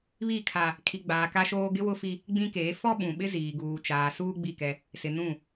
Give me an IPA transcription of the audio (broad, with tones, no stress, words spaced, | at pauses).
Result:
βi˦˨kʰa˦ | kʰi˨ɡ͡baː˨ ka˦ʃoː˦ ɡɪ˦wʊ˦fi˦ | ɡ͡bĩ˦keː˨˦ fɔ˦ ɓũ˨ɓɪ˦ ziː˨ɡuː˨t͡ʃaː˨ suː˦ɡ͡bi˦˨kɛ˦ | sɪ˨nũ˦˨